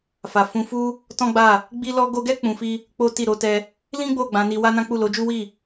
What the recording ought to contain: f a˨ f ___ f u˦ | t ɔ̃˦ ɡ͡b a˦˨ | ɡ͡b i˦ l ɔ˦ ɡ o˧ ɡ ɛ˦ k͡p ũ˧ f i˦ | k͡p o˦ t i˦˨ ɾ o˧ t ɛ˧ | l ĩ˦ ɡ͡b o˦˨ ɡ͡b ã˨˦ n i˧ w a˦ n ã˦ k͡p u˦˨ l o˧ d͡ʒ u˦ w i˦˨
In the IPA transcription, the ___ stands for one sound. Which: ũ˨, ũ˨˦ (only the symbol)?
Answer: ũ˨˦